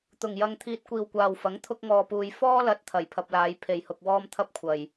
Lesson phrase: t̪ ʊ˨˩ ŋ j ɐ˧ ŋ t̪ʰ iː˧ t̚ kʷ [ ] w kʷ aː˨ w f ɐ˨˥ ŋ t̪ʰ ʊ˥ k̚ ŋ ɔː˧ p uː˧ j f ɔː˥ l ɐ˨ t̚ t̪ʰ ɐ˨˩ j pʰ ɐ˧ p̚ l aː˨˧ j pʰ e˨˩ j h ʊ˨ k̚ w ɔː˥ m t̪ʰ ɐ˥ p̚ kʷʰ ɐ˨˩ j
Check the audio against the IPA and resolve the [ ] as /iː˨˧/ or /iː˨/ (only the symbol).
iː˨